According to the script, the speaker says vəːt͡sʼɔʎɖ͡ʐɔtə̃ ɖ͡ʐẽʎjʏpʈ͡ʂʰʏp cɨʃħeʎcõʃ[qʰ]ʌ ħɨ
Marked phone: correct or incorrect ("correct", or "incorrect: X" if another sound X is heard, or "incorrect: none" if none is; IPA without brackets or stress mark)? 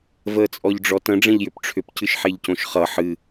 incorrect: χ